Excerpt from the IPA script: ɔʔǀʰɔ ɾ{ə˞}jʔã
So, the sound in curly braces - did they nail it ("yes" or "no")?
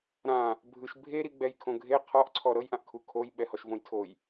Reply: no